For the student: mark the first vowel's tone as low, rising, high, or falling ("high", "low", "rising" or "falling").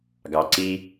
low